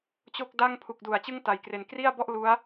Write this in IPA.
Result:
t͡ɕo˥˩k̚ da˥˩ŋ pʰu˨˩k̚du˩˦a̯ t͡ɕɯ˥˩ŋta˩˦jkre˨˩n kri˥˩a̯bɔ˥˩ʔ lu˦˥a̯

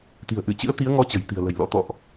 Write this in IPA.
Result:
t̪i̤˨˩ə̯ʔɨ˧˩t͡ɕɨ̰˧˥ə̯ t̪i˨˦ə̯ŋɔ˨˦ t͡ɕə̤˨˩jt̪i̤˨˩ə̯lə̤˨˩jlɔ̰˧˥ t̪ɔ̰˧˨ʔ

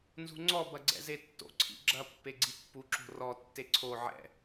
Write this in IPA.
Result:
nzṳŋ͡ǀɔ bɐɡ͡ǀɛ̰zetːo̰ ǀʰḭɡ͡ǁɐ pːeɡ͡ǀipːu ǁo̤rɔ tːeǀʰo ʕɛ̰

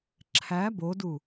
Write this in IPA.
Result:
ǁʰæ bodu

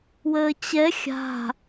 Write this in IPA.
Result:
wəːt͡ɕɛ xʲa̤

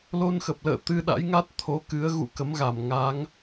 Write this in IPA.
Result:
lo˧nxə˨˩p̚lə̰ː˧˨ t̪ɨ˧ɗa̰˧˥jŋa˦˥t̚ t̪ʰo˨˦kɨ˨˦ə̯ ɣṵ˧˨kə˨˦mɣa˧˩mŋa˨˦ŋ

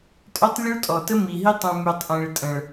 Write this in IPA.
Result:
tʼœ˦tˤlʲɔ˦ɭtʼɔ˨ tə˦mi˨ɦi˦ tˤũ˨my˨tˤʔẽ˨ɭ tʼə̃˨ɭ

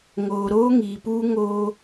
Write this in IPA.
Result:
ŋoː˨ɾoː˦ŋiː˨puː˦ ŋoː˦

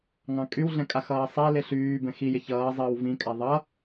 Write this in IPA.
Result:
ŋɑ̃kʼywɮɛ̃ kʼaxʌːsˤɛlɪ ɬyː bɛ̃xijɪ çʌː zˤəːwvĩkʼa ðˤʌ

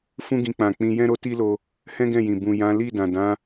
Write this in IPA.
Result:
fũ˦ɡĩ˧k͡pã˨ k͡pĩ˧jɛ̃˦ɾo˦ ti˦lo˧ | hɛ̃˦ɡɛ̃˦˨jĩ˨ bũ˨jã˨˦ li˦˨dã˨dã˨˦

